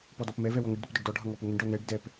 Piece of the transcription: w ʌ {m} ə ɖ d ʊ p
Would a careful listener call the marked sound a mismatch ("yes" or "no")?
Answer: yes